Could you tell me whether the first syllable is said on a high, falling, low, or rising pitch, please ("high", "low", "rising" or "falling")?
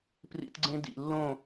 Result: high